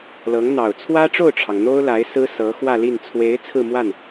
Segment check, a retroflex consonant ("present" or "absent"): present